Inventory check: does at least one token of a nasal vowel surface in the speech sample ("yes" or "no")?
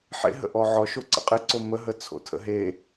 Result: no